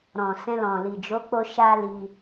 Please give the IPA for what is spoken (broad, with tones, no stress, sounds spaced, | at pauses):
ɾ ɔ̃˨ s ɛ̃˧ l ɔ̃˨ l i˨ d͡ʒ o˨˦ k͡p o˧ ʃ a˦ l i˧